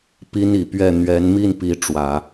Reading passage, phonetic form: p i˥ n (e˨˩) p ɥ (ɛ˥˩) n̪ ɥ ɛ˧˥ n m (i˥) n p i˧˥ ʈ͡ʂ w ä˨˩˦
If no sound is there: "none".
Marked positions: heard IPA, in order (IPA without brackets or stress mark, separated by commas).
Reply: i˨˩, ɛ˥˩, i˥˩